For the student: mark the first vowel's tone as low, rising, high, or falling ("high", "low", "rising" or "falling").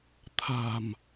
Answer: low